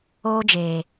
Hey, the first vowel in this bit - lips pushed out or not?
yes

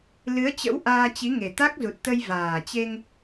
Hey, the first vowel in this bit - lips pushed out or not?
no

